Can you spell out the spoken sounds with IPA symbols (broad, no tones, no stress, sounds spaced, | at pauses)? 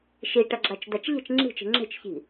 ʃ i ʈ ʌ ɡ͡ǁ a t͡ʃ d̪ a t͡ʃ ʎ e̤ t͡ʃ ŋ͡ǁ i̤ t͡ʃ i̤ ŋ͡ǁ e̤ t͡ʃ ç i̤